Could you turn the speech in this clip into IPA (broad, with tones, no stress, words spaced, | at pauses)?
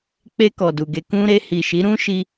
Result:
k͡pe˧ kɔ˨du˨ɡe˧ kũ˧ɾe˧ hi˨ʃi˨˦ ɾũ˦ ʃi˧